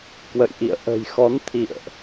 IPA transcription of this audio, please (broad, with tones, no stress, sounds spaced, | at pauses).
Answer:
k w ə̰˧˨ j ʔ ḭ˧˨ ə̯ ʔ ə̤˨˩ j x ɔ˨˦ n t̪ʰ ḭ˧˨ ə̯ ʔ